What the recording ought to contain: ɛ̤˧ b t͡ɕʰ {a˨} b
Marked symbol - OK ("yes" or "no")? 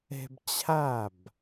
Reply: no